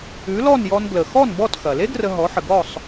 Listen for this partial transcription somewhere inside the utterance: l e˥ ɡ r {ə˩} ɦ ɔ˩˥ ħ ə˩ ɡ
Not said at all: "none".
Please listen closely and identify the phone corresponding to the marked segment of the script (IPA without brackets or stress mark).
ə˧